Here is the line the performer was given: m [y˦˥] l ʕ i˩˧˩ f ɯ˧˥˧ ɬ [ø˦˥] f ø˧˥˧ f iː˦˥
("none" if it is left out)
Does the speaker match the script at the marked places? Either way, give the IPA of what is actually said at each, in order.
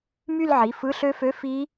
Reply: y˥˧, ø˦˥

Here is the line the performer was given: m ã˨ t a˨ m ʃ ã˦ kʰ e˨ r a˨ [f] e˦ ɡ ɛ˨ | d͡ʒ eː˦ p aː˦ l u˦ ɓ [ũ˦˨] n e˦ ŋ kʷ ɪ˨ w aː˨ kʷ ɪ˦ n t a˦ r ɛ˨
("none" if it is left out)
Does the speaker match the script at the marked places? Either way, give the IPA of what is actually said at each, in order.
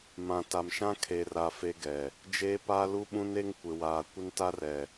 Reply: f, ũ˦

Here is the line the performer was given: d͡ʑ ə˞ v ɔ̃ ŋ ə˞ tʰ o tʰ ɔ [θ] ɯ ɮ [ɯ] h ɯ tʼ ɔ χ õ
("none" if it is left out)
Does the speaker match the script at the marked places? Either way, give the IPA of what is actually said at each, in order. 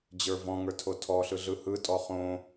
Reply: ɬ, ɯ

